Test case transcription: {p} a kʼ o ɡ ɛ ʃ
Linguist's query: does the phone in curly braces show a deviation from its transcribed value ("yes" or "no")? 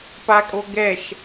no